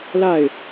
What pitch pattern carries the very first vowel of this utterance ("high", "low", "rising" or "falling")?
falling